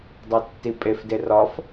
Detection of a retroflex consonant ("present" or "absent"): absent